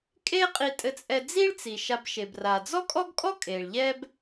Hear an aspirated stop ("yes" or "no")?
no